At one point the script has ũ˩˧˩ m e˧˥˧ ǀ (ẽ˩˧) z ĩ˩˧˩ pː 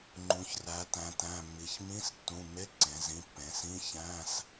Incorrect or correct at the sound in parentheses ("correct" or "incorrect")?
correct